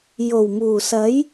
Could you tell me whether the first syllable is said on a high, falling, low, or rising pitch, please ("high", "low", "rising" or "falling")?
low